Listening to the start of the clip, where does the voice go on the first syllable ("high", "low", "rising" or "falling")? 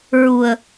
low